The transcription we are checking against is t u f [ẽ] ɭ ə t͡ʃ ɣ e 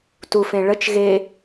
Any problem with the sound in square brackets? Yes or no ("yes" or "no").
no